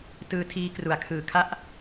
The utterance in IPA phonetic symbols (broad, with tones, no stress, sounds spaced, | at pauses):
t ɯː˧ tʰ iː˦˥ k r u˨˩ a̯ kʰ ɯː˨˩ kʰ a˥˩ ʔ